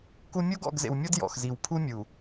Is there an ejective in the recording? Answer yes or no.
no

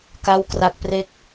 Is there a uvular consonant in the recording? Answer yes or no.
no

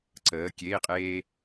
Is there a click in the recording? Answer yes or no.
yes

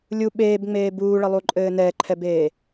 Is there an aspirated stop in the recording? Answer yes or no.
yes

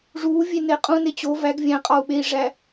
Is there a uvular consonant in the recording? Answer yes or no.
yes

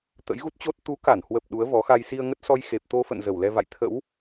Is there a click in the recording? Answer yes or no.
no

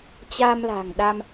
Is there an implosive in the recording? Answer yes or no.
yes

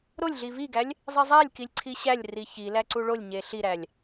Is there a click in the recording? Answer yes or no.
yes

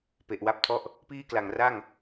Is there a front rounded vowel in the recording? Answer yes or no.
no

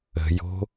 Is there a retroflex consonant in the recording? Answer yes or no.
no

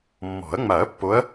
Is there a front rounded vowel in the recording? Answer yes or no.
no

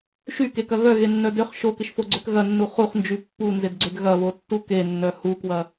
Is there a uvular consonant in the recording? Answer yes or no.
yes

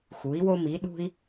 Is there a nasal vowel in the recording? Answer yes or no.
no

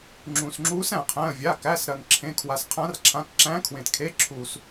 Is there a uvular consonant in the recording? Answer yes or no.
yes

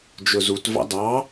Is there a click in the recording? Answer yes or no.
no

